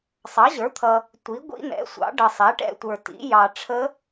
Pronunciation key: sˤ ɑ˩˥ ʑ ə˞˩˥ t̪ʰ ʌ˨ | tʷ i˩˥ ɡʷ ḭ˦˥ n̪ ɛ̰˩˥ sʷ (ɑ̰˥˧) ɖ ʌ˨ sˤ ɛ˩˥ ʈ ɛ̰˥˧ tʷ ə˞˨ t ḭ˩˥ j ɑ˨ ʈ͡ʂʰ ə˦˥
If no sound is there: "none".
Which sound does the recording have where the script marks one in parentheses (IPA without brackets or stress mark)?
ɑ̰˩˥